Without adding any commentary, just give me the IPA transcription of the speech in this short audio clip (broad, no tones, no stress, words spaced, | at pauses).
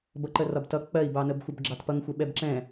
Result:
bʌǃərɒbtʌ k͡pɜi̯bɑnəbxʷəb ɡ͡ǁɑtpʌŋxʷɛ ɓɛbǁɛ̃